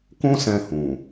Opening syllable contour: high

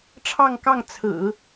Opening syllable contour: falling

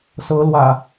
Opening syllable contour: rising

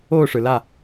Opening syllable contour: falling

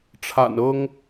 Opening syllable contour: low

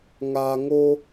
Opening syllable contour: low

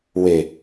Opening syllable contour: low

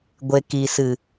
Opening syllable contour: low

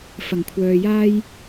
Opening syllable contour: low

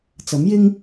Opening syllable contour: rising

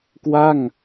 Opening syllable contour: falling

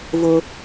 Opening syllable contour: high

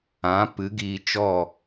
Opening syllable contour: rising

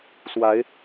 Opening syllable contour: rising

